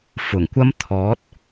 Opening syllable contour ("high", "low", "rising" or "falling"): low